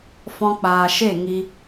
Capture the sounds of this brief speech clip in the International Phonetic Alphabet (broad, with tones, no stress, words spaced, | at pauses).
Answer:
fɔ̃˧k͡paː˨ʃe˦˨ ŋi˧